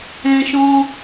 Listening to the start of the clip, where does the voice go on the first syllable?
high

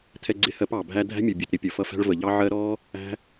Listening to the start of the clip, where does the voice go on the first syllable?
high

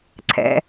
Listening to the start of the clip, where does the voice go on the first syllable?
low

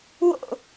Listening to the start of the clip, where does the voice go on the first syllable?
falling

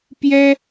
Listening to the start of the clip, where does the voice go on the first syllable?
high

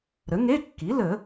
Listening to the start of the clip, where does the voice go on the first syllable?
rising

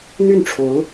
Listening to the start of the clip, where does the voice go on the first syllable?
falling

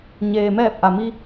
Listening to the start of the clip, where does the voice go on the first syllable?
low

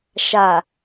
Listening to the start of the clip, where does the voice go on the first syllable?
low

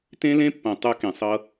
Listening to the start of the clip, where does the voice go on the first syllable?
high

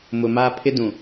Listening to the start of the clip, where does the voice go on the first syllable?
low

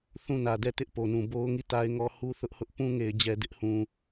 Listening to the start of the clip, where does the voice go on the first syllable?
falling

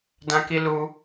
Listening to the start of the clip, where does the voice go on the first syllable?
high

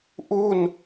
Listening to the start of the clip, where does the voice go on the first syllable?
falling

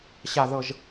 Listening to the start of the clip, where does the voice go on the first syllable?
low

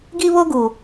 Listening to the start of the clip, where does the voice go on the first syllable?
high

